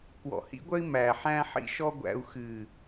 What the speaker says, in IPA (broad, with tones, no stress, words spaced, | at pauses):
kwɔ̰˨hḭ˧ɡʷœ˧i̯ mæ˨ ħæ̃˧ħḭ˧ʃɔ˧ ɡʷæ̰˧u̯ xɨ˨